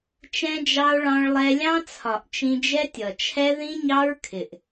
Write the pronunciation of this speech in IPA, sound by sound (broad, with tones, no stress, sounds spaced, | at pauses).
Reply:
t͡ʃ ɛ̃˧ d͡ʒ ɑ˧ o̯ ɭ ɑ̃˧ ɭ lˠ ɛ˧ lʲ ɑ̃˦ t͡sʰ ɒ˨ ʔ t͡ʃ ĩ˧ d͡ʒ ɛ˦ tʲ ʌ˨ t͡ʃʰ ɛ˦ ð ĩ˦ ɲ ɑ˦ ɹ kʰ ɪ˨ ʔ